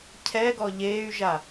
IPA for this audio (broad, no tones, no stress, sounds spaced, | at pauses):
cʰ ɛ ɡ ɔ ʎ eː y̯ ʒ a